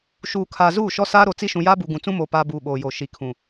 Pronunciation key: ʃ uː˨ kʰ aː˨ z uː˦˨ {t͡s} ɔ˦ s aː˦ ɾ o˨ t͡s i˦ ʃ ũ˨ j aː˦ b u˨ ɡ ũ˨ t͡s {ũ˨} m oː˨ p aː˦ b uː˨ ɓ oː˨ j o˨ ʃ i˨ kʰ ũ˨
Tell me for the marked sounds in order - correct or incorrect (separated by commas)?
incorrect, incorrect